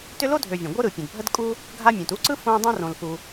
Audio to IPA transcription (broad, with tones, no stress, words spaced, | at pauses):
tʏ˦lo˥dʱø˨vʲə̃˩ ɡʷɯ˥ɾɯ˩pʲə̃˩d bʱə˥dkʼu˥ | ɡʱa˦mʲũ˩t u˥ǀɯ˥ fõ˥dˤõ˥ rõ˨lfu˨